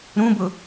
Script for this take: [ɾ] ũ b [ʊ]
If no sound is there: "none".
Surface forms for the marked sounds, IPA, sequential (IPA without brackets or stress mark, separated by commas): ɾ, ʊ